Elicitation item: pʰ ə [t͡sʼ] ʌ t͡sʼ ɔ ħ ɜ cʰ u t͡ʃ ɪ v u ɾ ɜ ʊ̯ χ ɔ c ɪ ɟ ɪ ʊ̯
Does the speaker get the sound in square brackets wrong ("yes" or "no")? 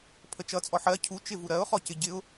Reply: yes